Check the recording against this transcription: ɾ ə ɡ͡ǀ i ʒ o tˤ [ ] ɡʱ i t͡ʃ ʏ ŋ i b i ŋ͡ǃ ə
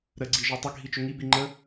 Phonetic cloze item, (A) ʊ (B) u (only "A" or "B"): A